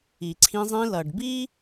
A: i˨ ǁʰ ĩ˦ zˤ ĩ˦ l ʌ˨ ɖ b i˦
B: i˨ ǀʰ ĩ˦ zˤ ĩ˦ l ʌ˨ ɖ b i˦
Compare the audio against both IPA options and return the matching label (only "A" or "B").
B